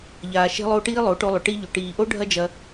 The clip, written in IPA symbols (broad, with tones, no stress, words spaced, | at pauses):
ʎaː˧ʃe̤˦lˠo˦ʈiː˦ lˠo˨˦ʈo˧lˠʏ˨ ʈi˧ʎʏ˨ ʈiː˨ʔo˦ ɖʱɐ˦d͡ʒɐ˧